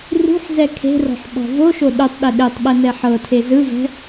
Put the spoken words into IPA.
rṳħzɛ kʰe̤rɔ̤ħ ɓɔ̤voʃo ɗutˤɗe ɗetˤɓɛ nɛħɤtʰe zɯvɛ̤

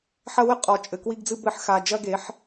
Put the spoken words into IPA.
ħɐ˦wɘ˦ qʼɔ˨t͡ʃʼɘ˨kwi˦ɡd͡zɨ˦ bɘ˦ħ xa˨d͡ʒɐ˦ɡe˨˦ħ

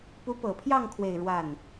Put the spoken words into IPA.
pu˧˥pɤ˨˩pʰjɑ˥˧ŋ kʰwe˥˧ɪ̯ ɻwa˥˩n

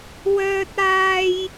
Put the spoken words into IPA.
wœː˧t̚aː˧j

